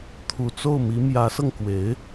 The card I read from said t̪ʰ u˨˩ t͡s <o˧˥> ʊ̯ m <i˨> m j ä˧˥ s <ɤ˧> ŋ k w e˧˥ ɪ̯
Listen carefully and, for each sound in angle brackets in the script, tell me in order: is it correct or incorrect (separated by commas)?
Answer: incorrect, incorrect, correct